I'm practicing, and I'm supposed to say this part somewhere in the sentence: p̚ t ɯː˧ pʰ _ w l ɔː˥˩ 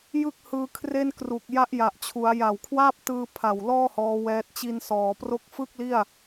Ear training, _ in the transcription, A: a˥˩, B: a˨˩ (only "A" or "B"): B